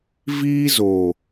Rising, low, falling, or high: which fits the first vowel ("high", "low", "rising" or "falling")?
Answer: high